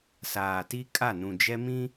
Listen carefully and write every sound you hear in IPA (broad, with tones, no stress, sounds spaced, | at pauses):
s aː˨ t i˦ kʼ a˦˨ n ũ˨ d͡ʒ ɛ˦ m ĩ˦